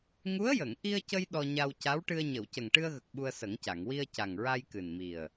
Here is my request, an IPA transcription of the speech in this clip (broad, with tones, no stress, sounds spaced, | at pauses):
ŋ u˧˥ ə̯ j ə˨˩˨ ŋ ʔ i˧ ə̯ c ə˧ j ɗ ɔ˧ ɲ a˧ w c a˧˥ w ʈ ɨ˧ ə̯ ɲ ə˨˩˨ w c ə˨˩ ŋ ʈ ɨ˧ ə̯ ɣ ə˨˩ k̚ ɓ u˧ ə̯ s ə˨˩˦ ŋ c a˨˩˨ ŋ w i˧ ə̯ c a˨˩ ŋ ɹ a˧ j k ɨ˨˩ n m i˨˩ ə̯